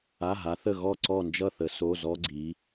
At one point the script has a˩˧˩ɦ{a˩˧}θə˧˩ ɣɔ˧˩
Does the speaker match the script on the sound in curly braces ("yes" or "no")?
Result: yes